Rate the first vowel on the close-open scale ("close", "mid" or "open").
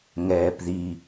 mid